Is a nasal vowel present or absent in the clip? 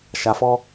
absent